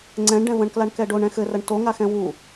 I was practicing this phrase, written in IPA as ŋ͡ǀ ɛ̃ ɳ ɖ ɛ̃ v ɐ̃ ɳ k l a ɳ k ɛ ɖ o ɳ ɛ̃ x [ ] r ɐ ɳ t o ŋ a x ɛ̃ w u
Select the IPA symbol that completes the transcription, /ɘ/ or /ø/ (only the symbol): ɘ